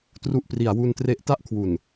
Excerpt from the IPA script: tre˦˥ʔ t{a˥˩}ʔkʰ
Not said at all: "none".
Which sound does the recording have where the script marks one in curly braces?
a˥˩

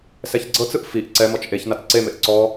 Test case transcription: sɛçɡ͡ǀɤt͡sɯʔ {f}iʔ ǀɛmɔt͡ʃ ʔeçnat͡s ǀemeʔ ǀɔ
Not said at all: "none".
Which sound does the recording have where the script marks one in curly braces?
f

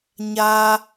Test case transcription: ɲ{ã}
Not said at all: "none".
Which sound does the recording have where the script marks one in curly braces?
a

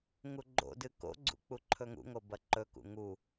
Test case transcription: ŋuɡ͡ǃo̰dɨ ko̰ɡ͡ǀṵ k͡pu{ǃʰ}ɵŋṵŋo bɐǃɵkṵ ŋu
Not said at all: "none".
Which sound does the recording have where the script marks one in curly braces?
ǃʰ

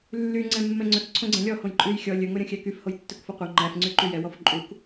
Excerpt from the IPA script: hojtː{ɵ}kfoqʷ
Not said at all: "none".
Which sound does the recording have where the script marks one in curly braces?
ɵ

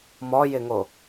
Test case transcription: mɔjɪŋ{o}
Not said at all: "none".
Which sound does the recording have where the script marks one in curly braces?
o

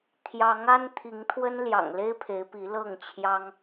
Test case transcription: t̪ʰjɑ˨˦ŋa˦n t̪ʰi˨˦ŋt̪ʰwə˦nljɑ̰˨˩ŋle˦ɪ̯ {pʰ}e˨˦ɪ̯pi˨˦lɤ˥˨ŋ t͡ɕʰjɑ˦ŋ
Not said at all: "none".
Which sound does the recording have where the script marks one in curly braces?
pʰ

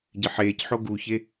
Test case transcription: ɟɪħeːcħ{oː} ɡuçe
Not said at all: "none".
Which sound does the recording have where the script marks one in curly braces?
o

